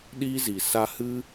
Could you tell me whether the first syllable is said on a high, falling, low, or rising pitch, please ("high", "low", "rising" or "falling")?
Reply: high